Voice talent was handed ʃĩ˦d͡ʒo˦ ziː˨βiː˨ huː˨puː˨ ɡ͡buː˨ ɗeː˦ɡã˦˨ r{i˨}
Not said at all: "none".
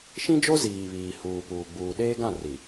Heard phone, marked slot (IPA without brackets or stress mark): i˨